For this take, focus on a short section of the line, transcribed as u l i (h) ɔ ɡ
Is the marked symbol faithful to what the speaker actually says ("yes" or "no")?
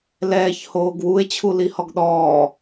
yes